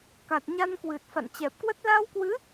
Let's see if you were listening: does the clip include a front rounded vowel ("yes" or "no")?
no